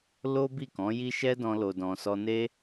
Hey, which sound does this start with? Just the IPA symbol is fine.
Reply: l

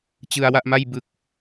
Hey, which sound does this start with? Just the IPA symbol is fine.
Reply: t͡ɕ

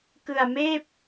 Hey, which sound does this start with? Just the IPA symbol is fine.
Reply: k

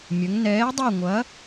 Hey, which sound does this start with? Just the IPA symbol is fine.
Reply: mʲ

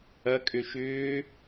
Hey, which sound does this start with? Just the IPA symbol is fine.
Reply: ɐ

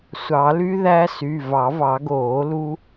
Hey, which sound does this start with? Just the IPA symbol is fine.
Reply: sʷ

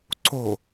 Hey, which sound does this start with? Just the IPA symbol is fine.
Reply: ǀ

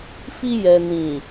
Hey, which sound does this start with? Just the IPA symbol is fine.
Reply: f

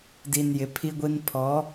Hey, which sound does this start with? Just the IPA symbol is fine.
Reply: d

